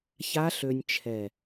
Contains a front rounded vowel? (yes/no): yes